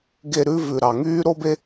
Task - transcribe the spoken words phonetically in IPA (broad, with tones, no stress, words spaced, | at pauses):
ɡe˧ ɾʉ˦ vʉ˨ɾɑ˨ŋyː˦ ɾo˦be˦